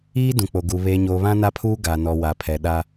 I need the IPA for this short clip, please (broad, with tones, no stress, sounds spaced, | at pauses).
iː˦ d ũ˨ k͡p o˨ ɡ u˨ β e˨ ɲ o˨ β ã˦ n a˦ pʰ uː˦ ɡ a˨ n ɔ˨ w a˨ pʰ ɛ˨ ɗ a˦